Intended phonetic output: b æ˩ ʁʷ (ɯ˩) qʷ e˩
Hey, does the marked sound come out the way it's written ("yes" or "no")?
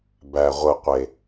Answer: yes